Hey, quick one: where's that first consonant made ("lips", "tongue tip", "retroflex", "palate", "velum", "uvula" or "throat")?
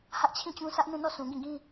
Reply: throat